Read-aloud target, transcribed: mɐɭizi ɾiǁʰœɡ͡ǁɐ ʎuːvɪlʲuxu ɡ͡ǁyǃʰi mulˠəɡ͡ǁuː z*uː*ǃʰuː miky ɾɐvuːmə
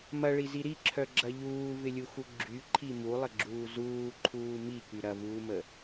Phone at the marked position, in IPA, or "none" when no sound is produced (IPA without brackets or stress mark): uː